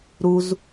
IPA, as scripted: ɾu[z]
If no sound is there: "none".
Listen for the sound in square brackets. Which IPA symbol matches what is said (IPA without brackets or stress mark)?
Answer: z